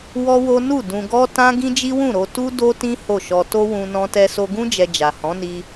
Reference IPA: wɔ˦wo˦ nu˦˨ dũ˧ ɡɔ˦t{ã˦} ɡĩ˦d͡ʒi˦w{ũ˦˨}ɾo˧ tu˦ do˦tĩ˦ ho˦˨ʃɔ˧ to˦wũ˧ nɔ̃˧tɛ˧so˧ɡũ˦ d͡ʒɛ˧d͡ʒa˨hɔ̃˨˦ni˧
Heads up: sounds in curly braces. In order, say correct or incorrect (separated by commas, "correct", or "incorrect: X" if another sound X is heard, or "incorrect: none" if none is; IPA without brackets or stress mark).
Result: correct, correct